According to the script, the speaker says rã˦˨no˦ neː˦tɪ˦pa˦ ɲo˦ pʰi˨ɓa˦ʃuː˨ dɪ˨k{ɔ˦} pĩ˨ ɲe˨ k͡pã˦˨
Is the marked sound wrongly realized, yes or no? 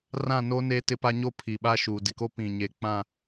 yes